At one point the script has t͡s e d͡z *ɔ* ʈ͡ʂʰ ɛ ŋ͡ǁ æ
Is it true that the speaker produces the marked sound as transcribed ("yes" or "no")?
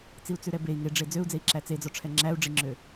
yes